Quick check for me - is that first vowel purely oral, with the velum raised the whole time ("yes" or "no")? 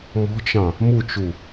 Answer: yes